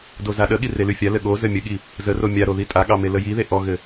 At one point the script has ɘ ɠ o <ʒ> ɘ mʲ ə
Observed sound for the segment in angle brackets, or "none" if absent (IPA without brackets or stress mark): z